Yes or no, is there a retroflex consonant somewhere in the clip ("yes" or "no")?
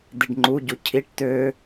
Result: yes